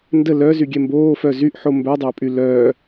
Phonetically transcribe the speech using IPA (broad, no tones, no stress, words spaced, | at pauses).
ndə lœ zyɡʲɛmboːfœ zyʔ ħombœdˤœːpʼy lœː